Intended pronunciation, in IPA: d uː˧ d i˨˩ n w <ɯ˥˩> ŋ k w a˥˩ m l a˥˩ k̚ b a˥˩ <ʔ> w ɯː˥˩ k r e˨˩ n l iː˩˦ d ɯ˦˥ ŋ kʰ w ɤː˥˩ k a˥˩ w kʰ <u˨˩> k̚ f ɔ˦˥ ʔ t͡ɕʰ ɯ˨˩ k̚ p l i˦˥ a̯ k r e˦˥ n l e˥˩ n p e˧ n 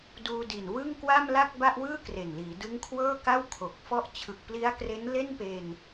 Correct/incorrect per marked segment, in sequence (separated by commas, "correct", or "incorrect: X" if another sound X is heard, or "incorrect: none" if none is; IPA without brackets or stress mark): correct, correct, incorrect: o˨˩